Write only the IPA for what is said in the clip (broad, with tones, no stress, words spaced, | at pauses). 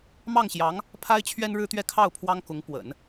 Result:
mɑ˥˩ŋɕjɑ˧˥ŋ | pʰa˥ɪ̯t͡ɕʰɥɛ˥nɻɻ̩˥t̪ɥɛ˥˧ kʰɑ˥˩ʊ̯ pʰwɑ˥ŋkʊ˧˥ŋ pwə̰˨˩˦n